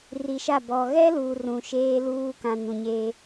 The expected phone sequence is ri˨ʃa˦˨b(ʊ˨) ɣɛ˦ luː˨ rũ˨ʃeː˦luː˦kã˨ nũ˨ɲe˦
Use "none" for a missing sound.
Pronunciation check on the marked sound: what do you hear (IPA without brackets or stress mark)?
ɔ˨